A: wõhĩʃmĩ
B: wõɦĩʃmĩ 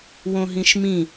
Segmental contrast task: B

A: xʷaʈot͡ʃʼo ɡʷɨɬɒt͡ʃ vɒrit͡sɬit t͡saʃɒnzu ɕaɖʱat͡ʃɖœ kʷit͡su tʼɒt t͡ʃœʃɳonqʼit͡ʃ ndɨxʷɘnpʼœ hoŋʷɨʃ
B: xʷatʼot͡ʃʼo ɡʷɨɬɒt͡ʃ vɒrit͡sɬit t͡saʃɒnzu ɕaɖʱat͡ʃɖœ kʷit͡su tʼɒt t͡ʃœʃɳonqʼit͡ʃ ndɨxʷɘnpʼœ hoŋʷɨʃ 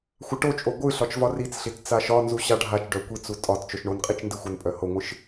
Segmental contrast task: A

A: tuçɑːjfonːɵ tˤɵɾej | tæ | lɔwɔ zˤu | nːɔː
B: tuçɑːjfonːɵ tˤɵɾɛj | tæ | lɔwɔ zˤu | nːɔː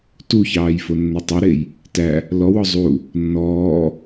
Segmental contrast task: A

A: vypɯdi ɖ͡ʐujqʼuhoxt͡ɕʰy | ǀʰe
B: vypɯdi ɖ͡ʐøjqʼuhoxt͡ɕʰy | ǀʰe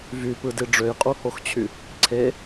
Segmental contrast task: B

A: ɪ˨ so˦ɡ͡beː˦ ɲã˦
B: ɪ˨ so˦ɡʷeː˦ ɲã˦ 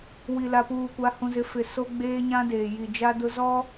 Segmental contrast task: A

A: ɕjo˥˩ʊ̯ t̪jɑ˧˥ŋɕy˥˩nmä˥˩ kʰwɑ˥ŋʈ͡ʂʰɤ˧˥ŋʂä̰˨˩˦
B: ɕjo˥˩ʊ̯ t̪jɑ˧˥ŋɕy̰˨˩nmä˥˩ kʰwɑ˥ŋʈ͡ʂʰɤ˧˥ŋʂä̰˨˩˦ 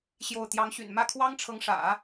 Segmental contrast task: B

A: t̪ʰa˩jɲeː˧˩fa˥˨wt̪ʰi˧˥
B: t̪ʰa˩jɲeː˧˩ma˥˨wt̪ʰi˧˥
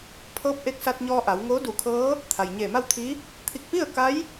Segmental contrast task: B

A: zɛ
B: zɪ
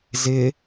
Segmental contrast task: B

